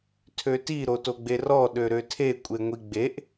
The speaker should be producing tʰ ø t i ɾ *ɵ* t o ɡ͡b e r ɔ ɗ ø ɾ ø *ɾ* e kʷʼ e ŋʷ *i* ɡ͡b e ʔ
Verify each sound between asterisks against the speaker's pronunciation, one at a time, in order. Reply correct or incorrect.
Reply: incorrect: o, incorrect: tʰ, correct

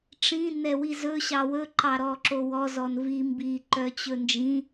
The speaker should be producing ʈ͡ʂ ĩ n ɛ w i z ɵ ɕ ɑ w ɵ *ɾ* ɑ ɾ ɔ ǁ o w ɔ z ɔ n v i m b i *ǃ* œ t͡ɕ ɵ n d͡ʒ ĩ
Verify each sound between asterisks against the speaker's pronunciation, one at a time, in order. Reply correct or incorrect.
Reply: incorrect: ǃ, correct

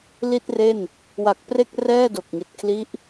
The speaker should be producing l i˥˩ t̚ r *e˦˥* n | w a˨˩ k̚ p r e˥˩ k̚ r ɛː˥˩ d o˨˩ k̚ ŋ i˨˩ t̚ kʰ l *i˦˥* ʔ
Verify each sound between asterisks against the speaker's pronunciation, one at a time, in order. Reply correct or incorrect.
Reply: incorrect: e˥˩, correct

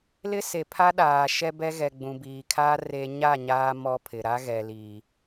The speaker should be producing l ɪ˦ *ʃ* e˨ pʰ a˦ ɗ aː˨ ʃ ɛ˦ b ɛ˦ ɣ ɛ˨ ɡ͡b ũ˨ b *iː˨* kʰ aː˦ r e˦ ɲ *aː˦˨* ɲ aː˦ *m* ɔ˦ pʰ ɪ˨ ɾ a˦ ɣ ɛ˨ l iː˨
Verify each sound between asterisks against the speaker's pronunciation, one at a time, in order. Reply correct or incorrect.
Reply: incorrect: s, correct, incorrect: a˦˨, correct

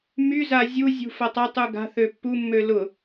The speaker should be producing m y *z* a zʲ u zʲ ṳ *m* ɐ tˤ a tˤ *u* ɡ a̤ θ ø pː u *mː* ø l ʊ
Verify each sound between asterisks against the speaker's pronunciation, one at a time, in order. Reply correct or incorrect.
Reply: correct, incorrect: f, correct, correct

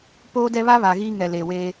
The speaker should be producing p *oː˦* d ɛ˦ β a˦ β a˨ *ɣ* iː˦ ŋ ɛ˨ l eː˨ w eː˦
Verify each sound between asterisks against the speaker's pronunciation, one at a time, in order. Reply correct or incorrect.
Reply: correct, correct

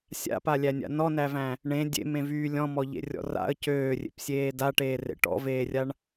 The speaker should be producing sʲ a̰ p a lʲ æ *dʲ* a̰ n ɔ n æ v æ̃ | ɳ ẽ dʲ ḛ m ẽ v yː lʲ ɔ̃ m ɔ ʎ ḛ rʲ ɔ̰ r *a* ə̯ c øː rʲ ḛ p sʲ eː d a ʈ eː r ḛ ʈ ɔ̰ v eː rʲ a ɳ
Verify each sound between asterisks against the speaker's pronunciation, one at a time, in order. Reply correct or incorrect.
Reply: incorrect: nʲ, incorrect: a̰

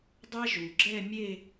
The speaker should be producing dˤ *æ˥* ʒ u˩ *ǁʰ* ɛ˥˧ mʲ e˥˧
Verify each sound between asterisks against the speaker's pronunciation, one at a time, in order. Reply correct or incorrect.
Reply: correct, incorrect: ɡ͡ǁ

